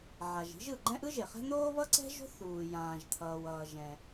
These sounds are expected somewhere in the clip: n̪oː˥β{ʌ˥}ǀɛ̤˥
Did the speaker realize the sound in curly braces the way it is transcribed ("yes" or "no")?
yes